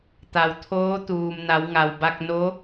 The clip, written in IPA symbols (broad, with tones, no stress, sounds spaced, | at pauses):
t̪ a˩ w t̪ʰ oː˧˥ t̪ uː˩ m n a˩˧ w ŋ a˩ w b a˧ k̚ n o˧˥